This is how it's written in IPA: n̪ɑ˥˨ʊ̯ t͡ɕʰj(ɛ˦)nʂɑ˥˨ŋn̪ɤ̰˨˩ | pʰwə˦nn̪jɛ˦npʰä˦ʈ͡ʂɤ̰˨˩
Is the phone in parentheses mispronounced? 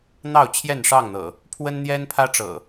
yes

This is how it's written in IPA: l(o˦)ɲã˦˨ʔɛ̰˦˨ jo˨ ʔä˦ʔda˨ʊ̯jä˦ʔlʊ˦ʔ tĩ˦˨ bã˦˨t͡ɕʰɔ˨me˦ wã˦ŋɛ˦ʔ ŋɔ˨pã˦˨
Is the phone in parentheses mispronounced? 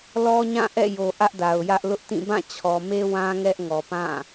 yes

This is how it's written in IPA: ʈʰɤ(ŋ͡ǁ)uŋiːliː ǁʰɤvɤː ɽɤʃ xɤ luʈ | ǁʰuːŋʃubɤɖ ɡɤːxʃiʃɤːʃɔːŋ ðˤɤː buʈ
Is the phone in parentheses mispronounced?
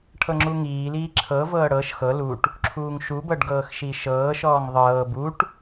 no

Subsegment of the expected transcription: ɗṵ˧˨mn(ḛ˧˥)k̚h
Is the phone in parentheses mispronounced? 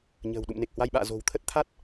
yes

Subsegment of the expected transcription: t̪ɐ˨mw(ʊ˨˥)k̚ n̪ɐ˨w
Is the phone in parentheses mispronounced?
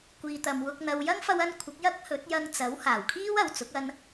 yes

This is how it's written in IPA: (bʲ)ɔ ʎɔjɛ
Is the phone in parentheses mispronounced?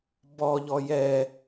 yes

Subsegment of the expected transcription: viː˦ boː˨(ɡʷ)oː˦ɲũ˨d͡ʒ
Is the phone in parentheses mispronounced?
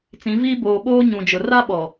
yes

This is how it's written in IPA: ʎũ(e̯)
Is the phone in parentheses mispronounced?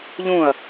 yes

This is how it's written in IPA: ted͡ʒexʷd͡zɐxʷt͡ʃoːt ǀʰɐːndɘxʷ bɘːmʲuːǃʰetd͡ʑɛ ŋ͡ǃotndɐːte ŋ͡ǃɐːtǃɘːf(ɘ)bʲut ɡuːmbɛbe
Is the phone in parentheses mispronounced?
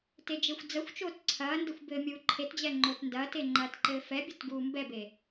yes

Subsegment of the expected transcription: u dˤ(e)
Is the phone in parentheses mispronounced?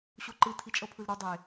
no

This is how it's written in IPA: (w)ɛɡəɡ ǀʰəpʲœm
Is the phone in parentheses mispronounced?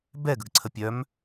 yes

